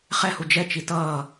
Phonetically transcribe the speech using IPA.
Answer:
χ ɛ h u d͡ʒ ɛ t͡ʃ i t ʌː

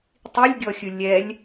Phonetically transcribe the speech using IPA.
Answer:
tˤ i lʲ ɡʲ ɔ xʲ ɯ lʲ ɛ lʲ

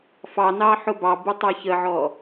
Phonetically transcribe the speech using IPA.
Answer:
f ɑ n ɑ ħ ʊ b ɑ b u tˤ æ ç ə ʕ ɔ

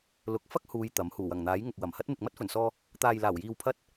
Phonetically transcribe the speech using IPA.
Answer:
l ʊ˨˥ k̚ f ɐ˥ k̚ h uː˨˧ j t̪ ɐ˨˥ m h uː˨˩ w ɐ˨˩ ŋ n̪ aː˨˥ j ŋ ʊ˨ k̚ w ɐ˨˩ m h ɐ˥ t̚ m ɪ˨ k̚ m ɐ˥ t̚ f ɵ˨˩ n s ɔː˧ | t̪ aː˨ j l aː˨˩ w j iː˨ w pʰ ɐ˧ t̚

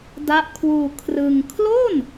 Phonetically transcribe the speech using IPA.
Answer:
d a˦˥ ʔ kʰ w uː˧ kʰ r ɯ˧ ŋ kʰ l o˥˩ n

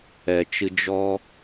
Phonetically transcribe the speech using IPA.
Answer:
ɛ˨ t͡ʃ ɨ˧ d͡ʒ ɔ˦

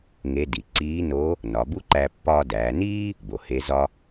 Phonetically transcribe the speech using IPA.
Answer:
ŋ e˧˥ d i˩ ǀ iː˧˥ n o˧˥ | n ɒ˩˧ b u˥ ǃ æ˧ pː ɒː˧ d æː˩˧ n iː˥ | b o˩ h e˧˥ z ɒ˥

